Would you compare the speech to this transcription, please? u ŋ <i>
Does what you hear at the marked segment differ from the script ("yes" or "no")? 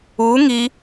no